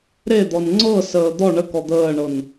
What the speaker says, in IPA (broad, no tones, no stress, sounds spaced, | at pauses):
ɾ e d̪ ɔ n ŋ͡ǀ ɤ s əː d̪ ɔ ɳ ə k ɔ d̪ əː ɳ ɤ n